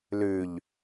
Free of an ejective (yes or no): yes